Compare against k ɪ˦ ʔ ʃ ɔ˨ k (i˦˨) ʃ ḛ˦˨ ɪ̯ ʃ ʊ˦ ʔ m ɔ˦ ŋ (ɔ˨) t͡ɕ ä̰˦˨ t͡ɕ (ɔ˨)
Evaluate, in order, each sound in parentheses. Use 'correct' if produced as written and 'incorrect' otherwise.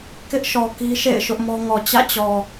incorrect, correct, correct

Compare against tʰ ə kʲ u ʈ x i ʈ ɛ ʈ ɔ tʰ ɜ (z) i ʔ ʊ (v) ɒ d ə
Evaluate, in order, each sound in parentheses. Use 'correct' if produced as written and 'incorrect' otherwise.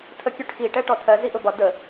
correct, incorrect

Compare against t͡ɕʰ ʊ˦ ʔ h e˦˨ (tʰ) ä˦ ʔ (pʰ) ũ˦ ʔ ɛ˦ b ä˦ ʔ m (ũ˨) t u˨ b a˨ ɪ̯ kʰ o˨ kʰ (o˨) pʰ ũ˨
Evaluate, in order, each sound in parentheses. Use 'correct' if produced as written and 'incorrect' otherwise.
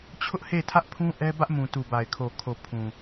correct, correct, correct, correct

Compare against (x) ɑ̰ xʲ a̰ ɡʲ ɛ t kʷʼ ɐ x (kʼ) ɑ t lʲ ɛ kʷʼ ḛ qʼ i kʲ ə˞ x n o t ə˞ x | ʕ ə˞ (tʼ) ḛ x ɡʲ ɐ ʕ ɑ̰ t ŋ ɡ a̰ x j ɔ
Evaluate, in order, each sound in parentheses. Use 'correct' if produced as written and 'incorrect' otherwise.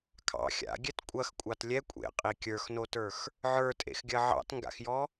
incorrect, incorrect, correct

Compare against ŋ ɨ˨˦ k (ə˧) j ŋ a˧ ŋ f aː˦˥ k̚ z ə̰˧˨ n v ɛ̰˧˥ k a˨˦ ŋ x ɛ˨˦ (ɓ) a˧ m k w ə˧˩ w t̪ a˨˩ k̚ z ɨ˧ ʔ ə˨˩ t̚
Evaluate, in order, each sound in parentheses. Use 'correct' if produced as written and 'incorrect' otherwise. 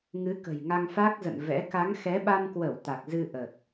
incorrect, correct

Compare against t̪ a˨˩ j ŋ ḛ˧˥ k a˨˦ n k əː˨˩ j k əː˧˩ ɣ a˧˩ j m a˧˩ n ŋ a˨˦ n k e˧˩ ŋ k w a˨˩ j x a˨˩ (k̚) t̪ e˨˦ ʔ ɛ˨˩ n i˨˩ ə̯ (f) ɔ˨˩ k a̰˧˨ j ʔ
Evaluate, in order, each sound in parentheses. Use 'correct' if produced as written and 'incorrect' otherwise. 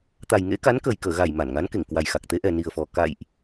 correct, correct

